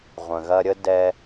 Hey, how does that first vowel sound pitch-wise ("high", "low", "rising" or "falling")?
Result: low